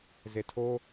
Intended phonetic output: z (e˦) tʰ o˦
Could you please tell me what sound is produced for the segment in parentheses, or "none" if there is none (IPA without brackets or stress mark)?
e˨